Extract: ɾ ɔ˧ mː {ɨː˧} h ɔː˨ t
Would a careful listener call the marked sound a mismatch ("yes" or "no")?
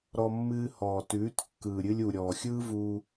no